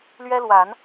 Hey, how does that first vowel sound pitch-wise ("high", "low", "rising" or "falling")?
high